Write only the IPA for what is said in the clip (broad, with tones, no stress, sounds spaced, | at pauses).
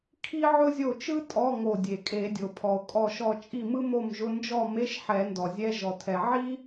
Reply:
kʰ i˥ ʕ ʊ˥ zʲ o˥˩ t͡ʃ ɯ˥ tʼ ɔ˧˥˧ ŋ o˧˩ dʲ e˩ kʼ e˨˩˦ dʲ o˩ pʰ ɔ˩ o̯ kʼ ɔ˧˩ ʃ ɔ˧˩ t͡ʃʼ i˥˩ m ɯ˥ m o˥˩ m ʒ ʊ˧˥˧ n d͡ʒ ɔ˥˩ m e˧˥˧ ʃ ħ ɛ˨˩˦ n d ɔ˩ zʲ ɛ˧˥˧ ʒ ɔ˩ tʰ ɛ˩ ʕ i˥